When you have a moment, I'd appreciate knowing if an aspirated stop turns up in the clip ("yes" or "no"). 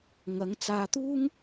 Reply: no